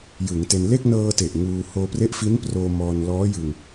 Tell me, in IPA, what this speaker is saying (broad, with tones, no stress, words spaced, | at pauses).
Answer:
jɯ˩˦ŋte˧n le˥˩k̚ nɤː˧te˨˩ʔ ŋuː˧ hoː˧pre˦˥ʔfi˦˥nproː˧ mɔː˧nlɔː˦˥jɯ˧ŋ